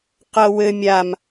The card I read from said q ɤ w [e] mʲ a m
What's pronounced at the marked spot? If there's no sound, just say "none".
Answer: ɘ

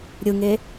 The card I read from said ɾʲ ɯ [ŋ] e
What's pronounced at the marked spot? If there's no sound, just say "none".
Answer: ŋ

